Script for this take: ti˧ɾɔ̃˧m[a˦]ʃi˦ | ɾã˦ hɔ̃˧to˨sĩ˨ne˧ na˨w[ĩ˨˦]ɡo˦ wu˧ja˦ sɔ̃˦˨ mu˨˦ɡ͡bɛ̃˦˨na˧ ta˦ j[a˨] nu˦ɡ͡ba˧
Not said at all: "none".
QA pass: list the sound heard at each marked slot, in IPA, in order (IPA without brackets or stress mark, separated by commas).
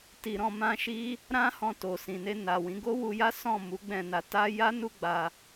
ã˦, ĩ˨˦, a˦